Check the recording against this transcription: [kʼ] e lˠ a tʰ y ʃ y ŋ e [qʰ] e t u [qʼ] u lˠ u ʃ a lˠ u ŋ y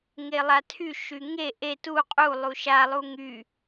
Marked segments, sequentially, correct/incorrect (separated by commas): incorrect, incorrect, correct